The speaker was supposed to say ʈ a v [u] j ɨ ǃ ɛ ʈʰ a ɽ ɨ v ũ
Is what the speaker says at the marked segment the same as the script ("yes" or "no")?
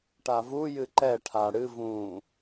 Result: yes